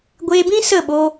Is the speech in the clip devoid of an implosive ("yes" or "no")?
no